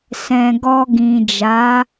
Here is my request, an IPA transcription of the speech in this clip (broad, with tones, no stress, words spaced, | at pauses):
sɛ̃˧ ɡɔ˧ɡĩ˨d͡ʒa˨˦